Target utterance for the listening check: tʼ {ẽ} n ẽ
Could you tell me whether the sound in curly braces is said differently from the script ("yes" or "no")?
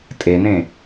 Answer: yes